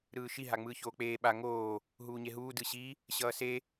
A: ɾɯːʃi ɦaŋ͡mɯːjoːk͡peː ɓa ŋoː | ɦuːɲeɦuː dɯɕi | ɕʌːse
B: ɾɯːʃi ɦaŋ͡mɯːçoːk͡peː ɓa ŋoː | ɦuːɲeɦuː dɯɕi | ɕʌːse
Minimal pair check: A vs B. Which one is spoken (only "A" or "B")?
B